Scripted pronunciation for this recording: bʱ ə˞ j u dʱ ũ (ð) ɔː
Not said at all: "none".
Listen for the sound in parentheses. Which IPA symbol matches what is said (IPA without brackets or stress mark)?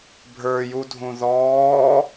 ð